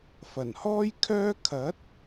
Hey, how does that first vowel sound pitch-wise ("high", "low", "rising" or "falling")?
low